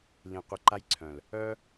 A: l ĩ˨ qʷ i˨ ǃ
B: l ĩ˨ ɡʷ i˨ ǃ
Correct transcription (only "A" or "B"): A